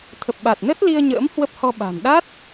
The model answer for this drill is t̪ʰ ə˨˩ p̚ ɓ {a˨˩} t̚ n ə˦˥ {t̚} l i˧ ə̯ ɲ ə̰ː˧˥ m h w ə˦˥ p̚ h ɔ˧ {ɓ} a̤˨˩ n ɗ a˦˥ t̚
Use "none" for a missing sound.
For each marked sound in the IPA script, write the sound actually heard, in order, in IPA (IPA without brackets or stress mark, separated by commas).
a˨˩, t̚, ɓ